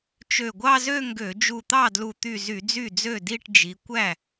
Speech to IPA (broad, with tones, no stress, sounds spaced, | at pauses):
t͡ʃ ø˧˩ ɡʷ ɑ˥˧ z ø˥˧ ŋ ɡ ø˧˩˧ d͡ʒ u˧˩ t̪ ɑ˥˩ d l u˧˩ t̪ y˧˩ z y˧˩˧ d͡z y˥˩ d͡z ø˥˩ d i˥˧ ʈ d͡ʒ i˨˦ kʷ æ˥˩